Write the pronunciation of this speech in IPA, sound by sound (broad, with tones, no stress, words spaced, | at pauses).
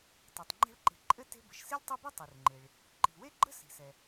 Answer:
tˤɛ˩tˤŋ͡ǃɛ̤˦ɭǃe̤˨ǃʼɘ˥ te̤˦bə˩ʃ si˥lʲtˤi˦bɛ˥ tˤu˩rŋ͡ǃe˩ɭ | ǃi̤˩we˥ɡ͡ǃə̤˥ si̤˩sɛ˩